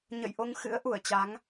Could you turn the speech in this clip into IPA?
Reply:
ɲ ə̰˧˨ j ʔ o˧ ŋ x ɨ̰˧˥ ə̯ ʔ u˧˩ ə̯ t͡ɕ a˨˦ ŋ

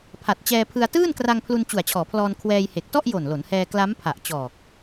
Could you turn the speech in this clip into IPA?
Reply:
pʰ a˨˩ t̚ t͡ɕ ɛː˧ pʰ ɯ˧ a̯ t ɯː˥˩ n k r a˧ ŋ pʰ l u˧ n t͡ɕ u˨˩ a̯ t͡ɕʰ ɔː˩˦ pʰ l ɔː˧ n kʰ w ɛː˧ j h e˨˩ k̚ t ɔ˥˩ ʔ j o˨˩ n l o˩˦ n h ɛː˧ k l a˦˥ m pʰ a˨˩ ʔ t͡ɕ ɔː˨˩ k̚

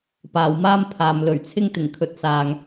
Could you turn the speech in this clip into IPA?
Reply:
p aː˨ w m aː˥ m pʰ aː˨ m l ɵ˨˩ ɥ t͡sʰ ɪ˥ ŋ t̪ ɪ˨˩ ŋ kʰ ɵ˨ t̚ s aː˧ ŋ

